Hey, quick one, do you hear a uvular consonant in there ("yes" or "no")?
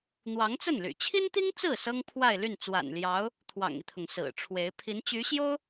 no